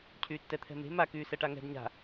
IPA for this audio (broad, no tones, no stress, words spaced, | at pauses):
cʰyːtːɛt̪ʰɛ̤me̤ ma kyːsɛʈaŋɛ̤d ɲa̤